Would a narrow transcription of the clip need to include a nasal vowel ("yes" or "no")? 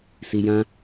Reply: yes